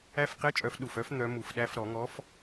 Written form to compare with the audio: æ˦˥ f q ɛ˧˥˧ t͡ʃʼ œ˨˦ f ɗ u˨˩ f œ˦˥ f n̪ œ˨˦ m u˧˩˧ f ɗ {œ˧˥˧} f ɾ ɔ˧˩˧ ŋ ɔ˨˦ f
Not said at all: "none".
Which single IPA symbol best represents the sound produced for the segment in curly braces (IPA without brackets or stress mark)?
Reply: æ˧˥˧